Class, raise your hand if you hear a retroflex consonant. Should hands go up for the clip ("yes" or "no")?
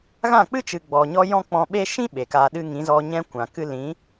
no